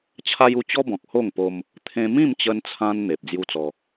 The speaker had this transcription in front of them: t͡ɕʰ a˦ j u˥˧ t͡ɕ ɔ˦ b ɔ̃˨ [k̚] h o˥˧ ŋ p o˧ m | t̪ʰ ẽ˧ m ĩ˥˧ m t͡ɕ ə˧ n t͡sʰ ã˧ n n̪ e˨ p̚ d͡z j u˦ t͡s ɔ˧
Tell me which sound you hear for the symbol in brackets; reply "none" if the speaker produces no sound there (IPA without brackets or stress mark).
k̚